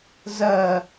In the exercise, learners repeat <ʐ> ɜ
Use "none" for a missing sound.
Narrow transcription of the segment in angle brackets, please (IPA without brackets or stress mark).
z